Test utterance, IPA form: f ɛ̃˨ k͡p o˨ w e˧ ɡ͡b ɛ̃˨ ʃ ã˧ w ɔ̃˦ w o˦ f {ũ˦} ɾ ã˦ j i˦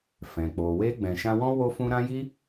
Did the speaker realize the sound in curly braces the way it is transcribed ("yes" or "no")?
yes